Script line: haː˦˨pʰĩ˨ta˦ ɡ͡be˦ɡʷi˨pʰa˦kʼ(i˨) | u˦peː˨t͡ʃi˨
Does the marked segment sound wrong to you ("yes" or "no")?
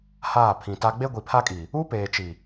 no